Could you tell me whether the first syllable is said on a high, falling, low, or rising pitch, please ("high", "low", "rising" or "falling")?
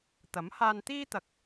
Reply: rising